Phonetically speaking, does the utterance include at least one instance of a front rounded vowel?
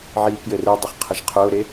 yes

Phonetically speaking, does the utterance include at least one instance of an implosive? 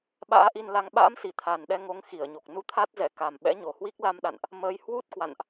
yes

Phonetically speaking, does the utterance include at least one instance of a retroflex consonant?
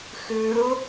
no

